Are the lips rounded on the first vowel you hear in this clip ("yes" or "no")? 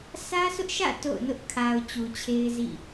no